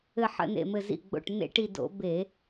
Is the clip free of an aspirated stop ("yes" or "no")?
yes